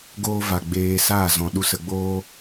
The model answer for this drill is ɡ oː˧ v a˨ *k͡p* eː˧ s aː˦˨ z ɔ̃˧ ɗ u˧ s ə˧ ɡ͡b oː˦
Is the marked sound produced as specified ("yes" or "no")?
no